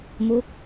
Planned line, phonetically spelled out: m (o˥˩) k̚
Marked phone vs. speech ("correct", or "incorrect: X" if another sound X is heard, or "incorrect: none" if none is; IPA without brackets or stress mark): correct